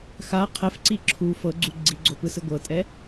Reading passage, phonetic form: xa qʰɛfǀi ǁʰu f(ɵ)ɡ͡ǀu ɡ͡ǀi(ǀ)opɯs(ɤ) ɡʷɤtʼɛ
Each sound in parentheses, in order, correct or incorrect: incorrect: ɤ, incorrect: ɡ͡ǀ, incorrect: ɯ

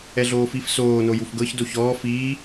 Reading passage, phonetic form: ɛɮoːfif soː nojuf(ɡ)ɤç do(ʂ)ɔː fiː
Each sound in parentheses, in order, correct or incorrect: correct, incorrect: ç

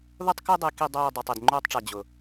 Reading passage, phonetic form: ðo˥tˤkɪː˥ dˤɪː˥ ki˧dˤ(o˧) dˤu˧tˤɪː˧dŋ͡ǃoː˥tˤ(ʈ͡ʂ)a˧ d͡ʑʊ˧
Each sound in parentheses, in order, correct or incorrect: incorrect: oː˧, correct

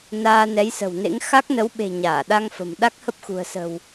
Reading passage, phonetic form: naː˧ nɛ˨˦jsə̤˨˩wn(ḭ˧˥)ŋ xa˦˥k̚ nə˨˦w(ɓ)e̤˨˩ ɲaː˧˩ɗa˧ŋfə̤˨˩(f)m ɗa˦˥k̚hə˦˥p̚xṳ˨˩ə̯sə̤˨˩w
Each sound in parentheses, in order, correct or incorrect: incorrect: ḛ˧˥, correct, incorrect: none

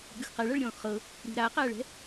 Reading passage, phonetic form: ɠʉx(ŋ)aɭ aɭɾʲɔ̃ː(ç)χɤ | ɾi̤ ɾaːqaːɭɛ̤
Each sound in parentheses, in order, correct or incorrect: incorrect: q, incorrect: x

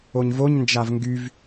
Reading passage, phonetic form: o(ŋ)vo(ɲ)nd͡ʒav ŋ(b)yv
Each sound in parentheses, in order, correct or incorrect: incorrect: ɲ, correct, incorrect: ɡ

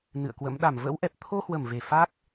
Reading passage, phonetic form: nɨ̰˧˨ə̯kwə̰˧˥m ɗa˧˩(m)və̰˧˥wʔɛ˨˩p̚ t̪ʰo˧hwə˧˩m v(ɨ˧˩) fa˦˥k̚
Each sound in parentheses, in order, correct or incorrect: correct, incorrect: e˧˩

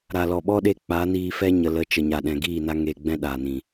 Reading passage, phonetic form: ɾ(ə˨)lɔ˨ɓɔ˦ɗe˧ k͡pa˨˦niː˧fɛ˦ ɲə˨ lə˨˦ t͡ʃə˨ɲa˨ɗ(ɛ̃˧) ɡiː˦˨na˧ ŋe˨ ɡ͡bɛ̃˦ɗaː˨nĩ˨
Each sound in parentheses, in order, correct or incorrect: incorrect: a˨, incorrect: ɛ̃˨

